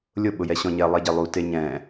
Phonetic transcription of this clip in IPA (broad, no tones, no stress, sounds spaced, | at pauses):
lʲ ʊ ɓ ʊ j ɛ ɕ ɔ̃ ɲ ɛ lˠ e ɟ e lˠ u t e ɲ ɛ̃